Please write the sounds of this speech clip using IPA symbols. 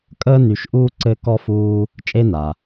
kʼ əː˦ n y˨ ʃ ʔ uː˦ ǀ ɘ˦ k ɔ˦ f uː˦ | t͡ʃʼ e˦ n a˩

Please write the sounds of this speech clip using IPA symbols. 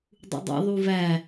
dˤ ṵ dˤ ḭ ðˤ u v æ

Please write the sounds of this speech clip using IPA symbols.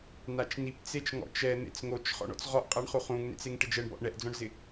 n a t͡ʃ n i p t͡s e t͡ʃ ŋ ɔ̰ t͡ʃ ɛ n̪ ḛ t͡s ŋ o t͡ʃ χ ɔ̰ ɳ ɔ̰ t͡s ʁ ɔ ʔ qʼ a ɳ χ u χ ũ ŋ n ḛ t͡s e ŋ ʈ ɪ d͡ʒ ɛ ɳ b ɔ̰ ʔ ɳ ɛ ʔ d͡z ɔ̃ ɳ z ɪ

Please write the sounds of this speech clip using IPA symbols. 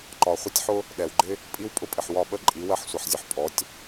ǃ ɒ˨ χʷ ɪ˦ tʲ ħ ʊ˦ | ɗ ɛ˨ w ɡ͡ǃ ɪ˦ | pʼ i˦ w pʼ ʊ˦ pʼ ɪ˨ ħ w ɒ˦˨ ɓ ə˦ ǃʼ i˨˦ w ɜ˦ ħ sʷ ʌ˨ ħ zʲ ʊ˨ ħ pʼ ɔ˨˦ tʲ

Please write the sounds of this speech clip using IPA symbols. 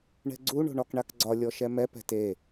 ɳ ɛ̤ ɡ͡ǀ u ɳ o̤ ɳ ɒ k ɳ a k ɡ͡ǀ ɒ lʲ ɔ ʃ ɛ m ɛ p ɛ̤ t e

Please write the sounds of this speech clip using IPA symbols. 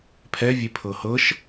pʰ ɛ vʲ e pʰ ɤ h ɤ ʃ

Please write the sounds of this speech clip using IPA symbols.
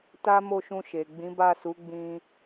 t a˦ m o˦˨ ʃ ũ˧ ʃ e˨ ɡ͡b ĩ˨˦ b a˦˨ s u˨˦ ɡ͡b ĩ˧

